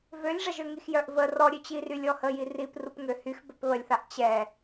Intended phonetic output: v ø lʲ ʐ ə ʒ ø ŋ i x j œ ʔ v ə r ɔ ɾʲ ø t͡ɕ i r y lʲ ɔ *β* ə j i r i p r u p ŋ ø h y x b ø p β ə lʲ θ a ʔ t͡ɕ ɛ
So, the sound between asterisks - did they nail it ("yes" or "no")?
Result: no